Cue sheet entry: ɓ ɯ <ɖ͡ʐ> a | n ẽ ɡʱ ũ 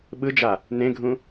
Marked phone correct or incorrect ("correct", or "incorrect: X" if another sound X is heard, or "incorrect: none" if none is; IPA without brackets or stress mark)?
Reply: incorrect: d͡ʒ